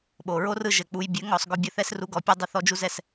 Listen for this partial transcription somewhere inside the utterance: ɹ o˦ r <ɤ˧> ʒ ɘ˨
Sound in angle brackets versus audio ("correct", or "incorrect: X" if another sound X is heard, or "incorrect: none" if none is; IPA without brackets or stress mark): incorrect: ɯ˧